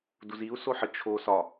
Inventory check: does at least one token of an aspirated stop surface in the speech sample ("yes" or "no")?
yes